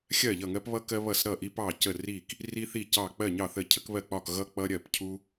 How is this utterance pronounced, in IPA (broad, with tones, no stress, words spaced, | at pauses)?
xʲɜ˧˩ʎʌ˧˩ŋɜ˧p βʌ˧ kɜ˧βʌ˧˩s ɾʌ˧˩ʔi˧pɑ˧˩cə˧˩ ri˧˩k | ri˧θi˧˩cɑ˧˩ k͡pɜ˧˩ɲɑ˧˩ θə˧˩cʰə˧kβɜ˧˩k͡pɒ˧˩k ɣʌ˧ k͡pʌ˧ɾʲɜ˧˩pcʰu˧